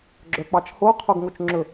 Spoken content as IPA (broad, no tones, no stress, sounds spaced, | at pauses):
ɡ͡ǁ œ k͡p ɑ t͡ʃ h o qʰ o ɡ ŋ o t͡ʃ ŋ͡ǁ ɵ